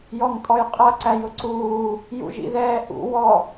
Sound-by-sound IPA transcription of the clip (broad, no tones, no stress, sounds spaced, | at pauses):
j ɔ ŋ tʼ ɔ j qʼ ʌ ǀ æ j ʊ ǀ uː | j ṵ ʒ ḭ ð ɛː ʔ ṵ w ɔ